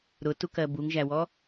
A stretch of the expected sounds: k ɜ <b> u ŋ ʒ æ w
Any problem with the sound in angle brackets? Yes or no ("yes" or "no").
no